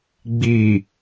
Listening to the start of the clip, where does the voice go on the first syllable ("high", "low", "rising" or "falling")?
low